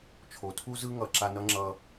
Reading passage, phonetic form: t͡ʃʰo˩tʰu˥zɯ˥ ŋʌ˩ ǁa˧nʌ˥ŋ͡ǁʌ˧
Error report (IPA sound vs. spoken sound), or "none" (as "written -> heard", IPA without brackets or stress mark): none